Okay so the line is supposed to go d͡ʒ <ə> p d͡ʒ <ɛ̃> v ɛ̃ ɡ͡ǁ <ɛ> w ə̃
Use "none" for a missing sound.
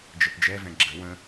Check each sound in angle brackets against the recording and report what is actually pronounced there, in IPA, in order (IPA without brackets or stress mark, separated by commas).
ə, ɛ, ə